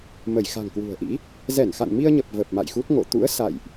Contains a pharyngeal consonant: no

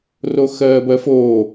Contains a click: no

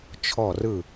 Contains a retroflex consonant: no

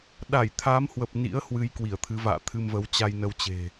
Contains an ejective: no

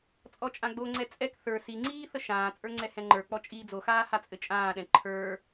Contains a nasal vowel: yes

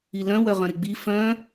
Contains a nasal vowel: yes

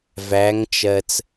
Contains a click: no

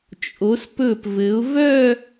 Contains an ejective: yes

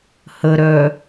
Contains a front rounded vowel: yes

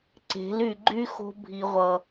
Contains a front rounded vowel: yes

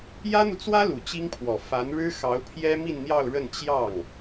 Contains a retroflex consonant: yes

